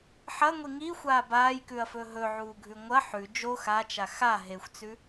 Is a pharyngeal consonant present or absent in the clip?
present